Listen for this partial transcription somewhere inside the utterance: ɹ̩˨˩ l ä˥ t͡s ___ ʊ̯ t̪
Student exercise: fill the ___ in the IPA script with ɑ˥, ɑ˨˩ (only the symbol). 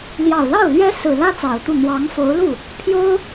ɑ˨˩